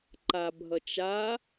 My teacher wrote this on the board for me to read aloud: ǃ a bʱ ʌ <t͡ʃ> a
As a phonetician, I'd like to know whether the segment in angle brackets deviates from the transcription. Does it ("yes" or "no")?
no